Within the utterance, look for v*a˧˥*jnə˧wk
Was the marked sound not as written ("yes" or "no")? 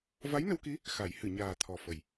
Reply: no